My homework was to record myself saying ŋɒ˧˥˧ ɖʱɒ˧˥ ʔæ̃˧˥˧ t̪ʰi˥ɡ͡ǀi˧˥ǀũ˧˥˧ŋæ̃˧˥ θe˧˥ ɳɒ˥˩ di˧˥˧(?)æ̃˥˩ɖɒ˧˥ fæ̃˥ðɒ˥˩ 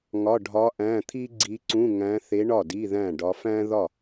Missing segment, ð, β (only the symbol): ð